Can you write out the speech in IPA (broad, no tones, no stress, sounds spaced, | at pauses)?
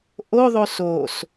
ʔ o ðˤ o s o s